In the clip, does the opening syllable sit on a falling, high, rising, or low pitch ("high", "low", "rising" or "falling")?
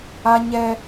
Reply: high